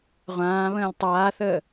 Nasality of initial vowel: nasal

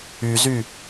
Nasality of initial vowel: oral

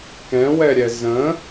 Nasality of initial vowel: nasal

